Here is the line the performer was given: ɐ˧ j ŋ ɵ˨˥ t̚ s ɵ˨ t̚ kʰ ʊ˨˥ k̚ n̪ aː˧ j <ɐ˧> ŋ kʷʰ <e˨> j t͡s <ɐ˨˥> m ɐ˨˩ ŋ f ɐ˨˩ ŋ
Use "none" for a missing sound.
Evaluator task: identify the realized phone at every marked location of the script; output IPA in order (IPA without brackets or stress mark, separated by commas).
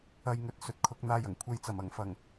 ɐ˨˩, e˨, ɐ˨˩